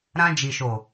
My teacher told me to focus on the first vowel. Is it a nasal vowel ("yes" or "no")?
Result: yes